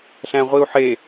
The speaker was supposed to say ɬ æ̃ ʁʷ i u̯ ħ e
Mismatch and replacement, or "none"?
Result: none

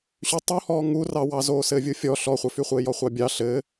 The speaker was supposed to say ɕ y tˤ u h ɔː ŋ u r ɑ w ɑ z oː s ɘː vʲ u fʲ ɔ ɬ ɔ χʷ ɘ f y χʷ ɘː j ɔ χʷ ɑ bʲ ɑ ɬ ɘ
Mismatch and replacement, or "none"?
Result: none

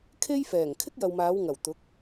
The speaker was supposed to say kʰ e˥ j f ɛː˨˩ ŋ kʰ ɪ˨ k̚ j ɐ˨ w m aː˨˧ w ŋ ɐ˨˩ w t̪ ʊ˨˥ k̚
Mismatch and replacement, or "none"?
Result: ɪ˨ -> ɪ˥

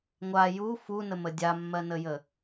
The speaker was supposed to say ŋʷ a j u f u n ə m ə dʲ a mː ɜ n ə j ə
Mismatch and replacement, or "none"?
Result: none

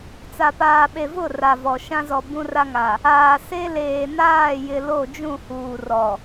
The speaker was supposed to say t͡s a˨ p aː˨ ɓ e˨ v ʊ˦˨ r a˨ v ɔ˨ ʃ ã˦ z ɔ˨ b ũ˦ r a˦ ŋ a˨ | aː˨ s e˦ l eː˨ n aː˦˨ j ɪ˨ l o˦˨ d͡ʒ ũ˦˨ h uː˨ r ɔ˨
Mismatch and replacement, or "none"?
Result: none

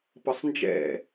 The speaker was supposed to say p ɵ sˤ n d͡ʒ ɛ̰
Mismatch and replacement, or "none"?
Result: ɵ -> ə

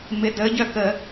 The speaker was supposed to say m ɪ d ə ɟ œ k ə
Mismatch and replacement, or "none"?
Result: none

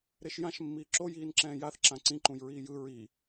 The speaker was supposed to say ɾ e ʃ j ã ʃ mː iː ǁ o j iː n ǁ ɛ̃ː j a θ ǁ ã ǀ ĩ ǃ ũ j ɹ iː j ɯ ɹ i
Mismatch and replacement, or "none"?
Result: none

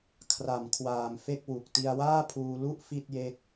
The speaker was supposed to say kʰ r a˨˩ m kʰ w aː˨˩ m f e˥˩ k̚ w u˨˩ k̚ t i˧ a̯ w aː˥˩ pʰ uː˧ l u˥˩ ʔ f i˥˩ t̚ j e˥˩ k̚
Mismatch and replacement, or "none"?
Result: none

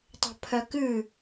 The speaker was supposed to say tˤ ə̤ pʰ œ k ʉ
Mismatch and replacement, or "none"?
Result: none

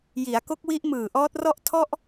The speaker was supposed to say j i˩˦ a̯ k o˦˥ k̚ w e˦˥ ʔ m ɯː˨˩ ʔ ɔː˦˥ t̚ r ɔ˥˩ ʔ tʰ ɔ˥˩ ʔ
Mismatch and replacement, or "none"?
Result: e˦˥ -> i˦˥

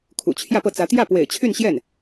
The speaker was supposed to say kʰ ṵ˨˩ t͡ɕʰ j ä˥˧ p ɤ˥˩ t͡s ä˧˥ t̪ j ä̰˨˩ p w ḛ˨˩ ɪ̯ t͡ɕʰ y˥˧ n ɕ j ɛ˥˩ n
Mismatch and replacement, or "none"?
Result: ä̰˨˩ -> ä˥˩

